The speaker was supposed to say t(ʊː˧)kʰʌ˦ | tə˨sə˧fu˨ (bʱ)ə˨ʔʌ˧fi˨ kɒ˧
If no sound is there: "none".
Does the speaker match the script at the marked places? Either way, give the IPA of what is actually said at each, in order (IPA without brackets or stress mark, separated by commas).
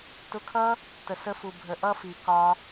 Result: ʊ˧, bʱ